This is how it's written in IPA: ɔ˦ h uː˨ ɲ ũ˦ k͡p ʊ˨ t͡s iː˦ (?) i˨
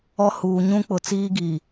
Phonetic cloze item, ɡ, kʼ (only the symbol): ɡ